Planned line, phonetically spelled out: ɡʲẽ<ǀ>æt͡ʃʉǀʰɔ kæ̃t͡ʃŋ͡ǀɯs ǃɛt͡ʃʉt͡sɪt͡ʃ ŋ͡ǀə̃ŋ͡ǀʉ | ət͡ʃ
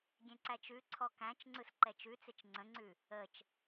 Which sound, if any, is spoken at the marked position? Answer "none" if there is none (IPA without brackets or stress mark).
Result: ǀ